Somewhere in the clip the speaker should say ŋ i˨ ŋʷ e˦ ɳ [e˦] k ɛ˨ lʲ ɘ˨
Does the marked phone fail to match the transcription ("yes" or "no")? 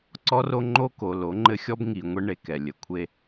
no